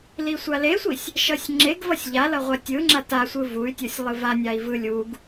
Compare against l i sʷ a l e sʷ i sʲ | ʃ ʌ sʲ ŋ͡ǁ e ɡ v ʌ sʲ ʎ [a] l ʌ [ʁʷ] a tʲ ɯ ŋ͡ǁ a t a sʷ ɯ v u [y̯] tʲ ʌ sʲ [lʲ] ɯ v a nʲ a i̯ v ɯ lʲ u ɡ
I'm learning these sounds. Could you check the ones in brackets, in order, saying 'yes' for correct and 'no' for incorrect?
yes, yes, yes, no

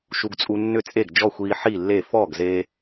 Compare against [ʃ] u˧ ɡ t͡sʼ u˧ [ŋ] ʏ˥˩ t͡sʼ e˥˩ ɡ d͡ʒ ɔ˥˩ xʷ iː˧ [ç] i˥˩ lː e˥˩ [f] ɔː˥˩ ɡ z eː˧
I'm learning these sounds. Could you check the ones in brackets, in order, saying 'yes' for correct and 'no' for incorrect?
yes, no, no, yes

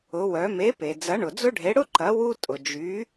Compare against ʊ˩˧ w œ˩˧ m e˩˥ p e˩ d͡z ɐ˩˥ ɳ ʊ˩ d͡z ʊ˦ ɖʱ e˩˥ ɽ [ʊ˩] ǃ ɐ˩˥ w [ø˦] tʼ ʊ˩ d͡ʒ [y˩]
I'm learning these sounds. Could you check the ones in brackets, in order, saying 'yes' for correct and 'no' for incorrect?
no, no, no

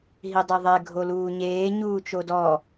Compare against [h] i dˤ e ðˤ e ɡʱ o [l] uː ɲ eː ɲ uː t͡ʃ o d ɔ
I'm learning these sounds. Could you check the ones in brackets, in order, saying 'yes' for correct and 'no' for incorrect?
no, yes

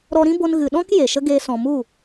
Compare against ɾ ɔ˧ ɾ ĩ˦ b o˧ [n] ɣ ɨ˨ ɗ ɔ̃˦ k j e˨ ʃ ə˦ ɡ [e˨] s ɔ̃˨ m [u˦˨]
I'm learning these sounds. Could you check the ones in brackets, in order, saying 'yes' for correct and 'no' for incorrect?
yes, no, yes

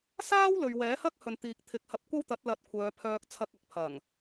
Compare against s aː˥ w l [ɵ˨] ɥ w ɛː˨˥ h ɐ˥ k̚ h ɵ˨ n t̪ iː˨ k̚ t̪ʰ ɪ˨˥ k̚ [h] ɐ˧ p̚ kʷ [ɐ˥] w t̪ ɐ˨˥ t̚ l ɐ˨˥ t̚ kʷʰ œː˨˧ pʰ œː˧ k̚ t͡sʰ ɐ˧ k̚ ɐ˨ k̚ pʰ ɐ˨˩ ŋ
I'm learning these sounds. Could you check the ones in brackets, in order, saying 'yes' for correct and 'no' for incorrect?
yes, yes, yes

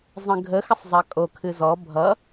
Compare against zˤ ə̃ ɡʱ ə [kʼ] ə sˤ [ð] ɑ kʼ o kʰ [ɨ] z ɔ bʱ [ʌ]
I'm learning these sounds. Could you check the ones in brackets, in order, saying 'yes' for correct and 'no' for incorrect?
no, no, yes, yes

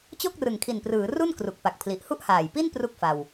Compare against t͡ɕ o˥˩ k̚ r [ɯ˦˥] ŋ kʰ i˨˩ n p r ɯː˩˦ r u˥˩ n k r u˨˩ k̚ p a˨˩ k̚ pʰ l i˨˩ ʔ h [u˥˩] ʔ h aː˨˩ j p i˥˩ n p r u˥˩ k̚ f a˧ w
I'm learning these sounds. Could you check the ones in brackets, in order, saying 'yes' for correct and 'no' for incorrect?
no, yes

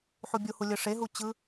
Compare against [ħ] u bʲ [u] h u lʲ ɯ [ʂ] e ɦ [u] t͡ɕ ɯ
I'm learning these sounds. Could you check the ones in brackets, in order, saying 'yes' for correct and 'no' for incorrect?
yes, yes, yes, yes

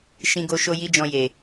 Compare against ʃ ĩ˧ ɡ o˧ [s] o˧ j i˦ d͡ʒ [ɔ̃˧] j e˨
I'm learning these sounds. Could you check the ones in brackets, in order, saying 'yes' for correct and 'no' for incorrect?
no, yes

